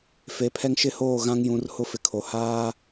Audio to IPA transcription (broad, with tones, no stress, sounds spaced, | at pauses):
f e˨ pʰ ɛ˦ ŋ ʃ ɪ˦ h oː˦˨ ɣ ã˦ ŋ j ũ˨˦ r h ʊ˦ f ɪ˨ kʰ o˨ h aː˦